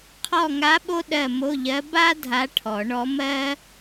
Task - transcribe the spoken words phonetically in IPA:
qʰ ɔ˦˨ ŋ a˧˥ ɓ o˥ ɗ ɜ˦˨ m o˧˥˧ ʎ ɜ˧˥ b a˥ dʱ a˧˥ ʈʰ ɔ˨˩˦ ɳ ɔ˧˥ m ɜ˥

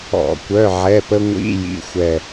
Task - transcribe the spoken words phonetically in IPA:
ɔ̰˧˩˧ kʷ œ˧˥˧ ʕ ɛ˧˥˧ p ə˥ ŋʷ ḭ˧˥˧ j ḭ˧˥˧ xʷ ɛ˦˨

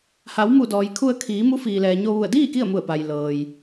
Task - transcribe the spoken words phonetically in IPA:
h a˩˧ w m u˧˩ d ɔː˩ j kʰ u˧ ə̯ kʰ iː˩˧ m u˧˥ f iː˩ l ɛː˩ ɲ o˧ ʋ u˧˩ ə̯ d iː˥˨ k i˥˨ ə̯ m u˧˩ ə̯ p a˩ j l ɤː˩ j

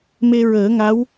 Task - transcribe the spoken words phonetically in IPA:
m e˧ ɹ əː˨˩˦ ŋ a˧˥ w

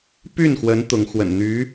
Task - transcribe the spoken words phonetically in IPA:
p y˥˩ n x w ə˧˥ n t̪ ʊ˧˥ ŋ x w ə̰˨˩ n n̪ y˧˥

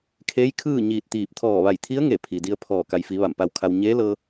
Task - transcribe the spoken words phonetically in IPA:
kʰ eː˧˥ j kʰ ɯː˥˨ ɲ iː˧˩ t̚ t̪ iː˧˩ p̚ t̪ʰ ɔː˧˩ ʋ a˧˩ j t̪ʰ i˧˥ ə̯ ŋ e˧˩ pʰ i˩ d i˧ ə̯ pʰ ɔː˧˩ k a˩ j f i˩˧ ʋ a˧˩ m p a˧ w kʰ a˧ w ɲ eː˧˥ l ɤː˧

